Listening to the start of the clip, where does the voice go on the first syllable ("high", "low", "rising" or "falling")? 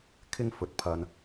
high